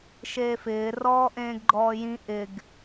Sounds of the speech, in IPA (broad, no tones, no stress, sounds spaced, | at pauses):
ʃ eː f ɪː r ɔː ʔ ẽː ɡ ɡ͡ǃ ɔː j ĩ ʔ ɪ ɡ